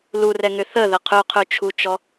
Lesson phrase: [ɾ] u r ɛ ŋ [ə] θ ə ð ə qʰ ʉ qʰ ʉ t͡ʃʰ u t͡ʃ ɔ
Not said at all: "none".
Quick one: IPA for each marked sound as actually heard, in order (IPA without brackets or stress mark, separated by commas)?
l, ʏ